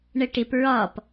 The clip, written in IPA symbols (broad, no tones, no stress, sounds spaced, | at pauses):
ɳ ə ʈ ɪ p ɹ ɒ p